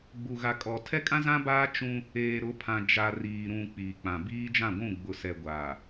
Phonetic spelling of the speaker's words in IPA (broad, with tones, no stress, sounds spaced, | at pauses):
ɡ͡b u˨ ɣ a˨ kʼ ɔ˨ tʰ ɛ˦ kʼ ã˦ z ã˦ b aː˦ t͡ʃ ũ˦ | eː˨ ɾ ʊ˨˦ pʰ ã˨ d͡ʒ a˨ r iː˨ ɾ ũ˨ k͡p iː˨ k͡p ã˨ b iː˦ d͡ʒ ã˦˨ ɡʷ ũ˦˨ ɡ͡b ʊ˨ s ɛ˨ ɡʷ a˨